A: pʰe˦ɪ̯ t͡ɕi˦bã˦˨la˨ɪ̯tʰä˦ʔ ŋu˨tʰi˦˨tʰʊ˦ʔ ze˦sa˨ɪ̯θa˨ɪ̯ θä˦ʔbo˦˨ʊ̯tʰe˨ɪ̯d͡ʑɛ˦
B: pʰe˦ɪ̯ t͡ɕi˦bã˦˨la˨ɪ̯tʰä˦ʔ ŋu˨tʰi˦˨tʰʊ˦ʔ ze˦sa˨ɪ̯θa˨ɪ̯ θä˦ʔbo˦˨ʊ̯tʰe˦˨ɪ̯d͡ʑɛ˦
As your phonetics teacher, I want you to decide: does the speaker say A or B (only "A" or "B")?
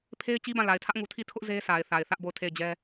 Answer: B